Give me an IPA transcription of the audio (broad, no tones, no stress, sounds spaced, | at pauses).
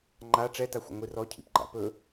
ŋ͡ǃ a ʈ͡ʂ ɛ t a xʷ a̰ ŋʷ i r ɔ cʰ ḭ p ɡ͡ǃ a̰ p ɵ